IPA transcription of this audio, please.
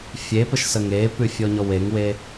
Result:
fʲ e p ə ʃ s ə ŋ e p ʉ fʲ ɔ ɲ ɔ w e ŋ w e

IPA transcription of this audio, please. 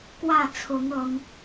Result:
k w ä˥˨ t͡sʰ ʊ˨˦ ŋ ɤ˨˦ ŋ

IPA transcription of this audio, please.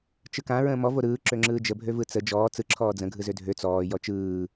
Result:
t͡ʃ ɯ k ã ɹ ə̃ː m ɔ v o ɾ ɯː ǁ ø ŋ͡ǁ ɯː d͡ʒ ə bʱ ø v ɯ t͡s ə d͡ʒ ɔː t͡s ɯ ǁʰ ɔː d͡z ə̃ ɡʱ ɯ z ø dʱ ø t͡s ɔː j ɔ t͡ʃ ɯː

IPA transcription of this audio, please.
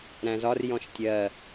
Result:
ɾ æ̃ z ɒ r j ɔ̃ ʃ tʲ ɜ

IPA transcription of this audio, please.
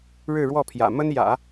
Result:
ɻ ɻ̩˥˧ ɻ w ɔ˥˩ pʰ j ä̰˨˩ m ə˥ n j ä̰˨˩˦

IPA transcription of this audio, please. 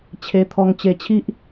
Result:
t͡ɕʰ e˧ t̪ʰ ɔ˧ ŋ t͡ɕ e˧ t͡ɕʰ i˦ ʔ

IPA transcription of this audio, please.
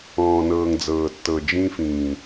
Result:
ɔ̃ː˨ n ɤː˨ ŋ d͡z ɤː˨ tː ɤ˨ d͡ʒ ĩ˦ f ĩː˨

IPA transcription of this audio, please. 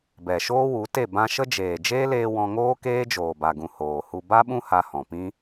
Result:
b ɛ˨ ʃ oː˦ w u˨˦ t e˦˨ b ã˧ ʃ ə˦ d͡ʒ eː˨ d͡ʒ eː˦ l eː˧ w ɔ̃˧ ŋ oː˦ k eː˦ d͡ʒ oː˨ b a˨ ɡ ũ˨ h oː˨ h u˧ b a˦ ɓ ũ˦ h a˧ h ɔ̃˨ p ĩ˦

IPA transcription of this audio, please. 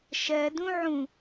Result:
ʃ ɜ d ũ ʕ ũ

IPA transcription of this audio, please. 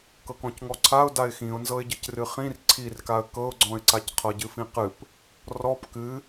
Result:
k ɤ k ɔ̃ c ŋ ɔ ǀʰ a ʊ̯ d a ɪ̯ x ĩ ʊ̯ n z ɤ ɪ̯ ɟ ɨ c r ɨ χ ĩ r ǀʰ i r k a ə̯ k ɤ ʊ̯ ɡ͡ǀ ɔ̃ ɪ̯ ǀ a c qʰ ɤ ɟ ɨ f ĩ q ɨ p | r ɔ p k ɨ

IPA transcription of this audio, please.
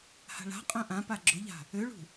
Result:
h a̤ ɭ a̤ qʼ œ̃ ʔ ã p a ɡ͡ǁ ʊ ʎ a̤ | ø ɭ ṳ

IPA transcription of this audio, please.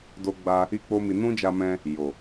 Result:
d o˧ ɡ͡b a˧ | i˦ k͡p o˦ m i˧ n ũ˦ d͡ʒ a˧ m ɛ̃˧ | j o˨

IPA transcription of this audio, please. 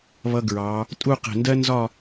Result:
β ʌ˧ ɡ ɹ ɑː˩˧ | tʼ u˥˧ q ɛ̤˧˩ n d ɜ˥ n z ɒ˥˧

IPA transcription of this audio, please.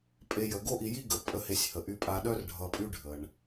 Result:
pʼ e˨ j ə˩ ɡ o˦ ʔ i˨ j i˦ ɡ ə˩ pʼ ə˨ h e˨ sʲ h ə˩ ʔ y˨ pʼ a˨ ɗ œ˦ r ɖʱ ʌ˨ pʼ y˦ ɖʱ ə˩ ɳ

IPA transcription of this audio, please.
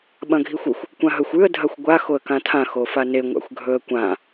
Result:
ɓ ɐ̃ ɡʱ i xʷ ʉ xʷ | kʷ ã ɦ ɵ xʷ ʉ ə̯ dʱ ɐ xʷ ɡʷ a x o ə̯ k ã tʰ ã x o f a n e ŋʷ a̰ xʷ ɡʱ ɵ ə̯ kʷ ã

